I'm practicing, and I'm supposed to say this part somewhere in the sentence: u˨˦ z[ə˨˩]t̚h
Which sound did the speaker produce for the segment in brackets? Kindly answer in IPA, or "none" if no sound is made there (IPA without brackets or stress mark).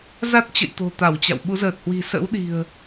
əː˨˩